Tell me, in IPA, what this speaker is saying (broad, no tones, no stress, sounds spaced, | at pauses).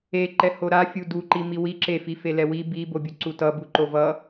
e ǃ ɛ h o ɾ a fʲ u d u ǃ i m i w i ǁ e f i f e l ɛ w i b i b o bʲ u ǀ u t ʌ b u ǃ o v ʌ